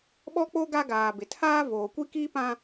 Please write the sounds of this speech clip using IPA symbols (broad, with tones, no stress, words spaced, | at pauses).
ɓɔ˦k͡po˦ ɡa˦ɡaː˨bɪ˨ tʰaː˦voː˨ kʷi˦kiː˦ pã˦